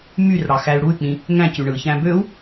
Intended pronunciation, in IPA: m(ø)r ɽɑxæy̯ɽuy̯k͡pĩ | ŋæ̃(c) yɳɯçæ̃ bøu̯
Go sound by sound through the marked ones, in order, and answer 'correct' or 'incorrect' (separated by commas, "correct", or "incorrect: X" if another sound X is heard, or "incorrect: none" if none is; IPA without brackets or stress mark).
incorrect: y, correct